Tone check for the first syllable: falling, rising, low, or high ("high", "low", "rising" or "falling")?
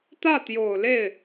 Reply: falling